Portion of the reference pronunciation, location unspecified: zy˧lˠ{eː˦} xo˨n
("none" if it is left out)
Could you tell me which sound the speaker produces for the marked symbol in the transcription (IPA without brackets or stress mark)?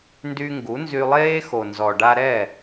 eː˦